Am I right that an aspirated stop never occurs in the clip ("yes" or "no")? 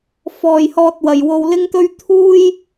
no